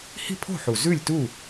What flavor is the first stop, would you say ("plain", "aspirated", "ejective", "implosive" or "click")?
aspirated